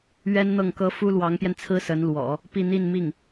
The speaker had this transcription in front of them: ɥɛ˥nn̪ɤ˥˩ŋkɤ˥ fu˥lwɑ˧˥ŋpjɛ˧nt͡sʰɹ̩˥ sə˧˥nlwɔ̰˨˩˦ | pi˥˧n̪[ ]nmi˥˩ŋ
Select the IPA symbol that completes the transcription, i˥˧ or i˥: i˥˧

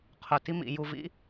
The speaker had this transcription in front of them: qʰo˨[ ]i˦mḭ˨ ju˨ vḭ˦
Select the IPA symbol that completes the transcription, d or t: t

